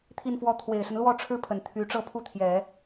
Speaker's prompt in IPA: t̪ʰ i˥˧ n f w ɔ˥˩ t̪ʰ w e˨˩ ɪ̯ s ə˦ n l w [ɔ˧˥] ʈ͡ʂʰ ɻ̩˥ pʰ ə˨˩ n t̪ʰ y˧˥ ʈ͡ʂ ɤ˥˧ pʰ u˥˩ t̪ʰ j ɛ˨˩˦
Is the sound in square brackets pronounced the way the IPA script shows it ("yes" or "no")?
no